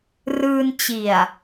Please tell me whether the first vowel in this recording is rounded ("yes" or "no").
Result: no